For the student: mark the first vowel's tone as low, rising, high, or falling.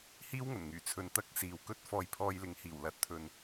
high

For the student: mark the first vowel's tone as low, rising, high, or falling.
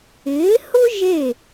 rising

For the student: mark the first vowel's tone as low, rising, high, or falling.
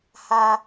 high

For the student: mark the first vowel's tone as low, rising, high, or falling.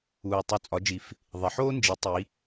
low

